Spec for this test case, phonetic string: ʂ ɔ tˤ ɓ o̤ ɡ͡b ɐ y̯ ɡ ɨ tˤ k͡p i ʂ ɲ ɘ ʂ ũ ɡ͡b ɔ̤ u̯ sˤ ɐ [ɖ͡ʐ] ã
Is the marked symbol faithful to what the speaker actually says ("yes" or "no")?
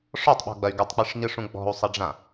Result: yes